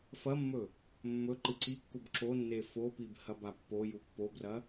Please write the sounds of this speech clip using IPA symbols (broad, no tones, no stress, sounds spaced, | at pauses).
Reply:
f ɐ mː ɵ | mː ɵ ǃ ɨ ǀ i kː u b ǁ o nː e f o p i b h ɐ b a pː o j u pː o b r ɐ